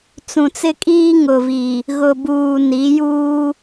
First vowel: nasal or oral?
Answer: nasal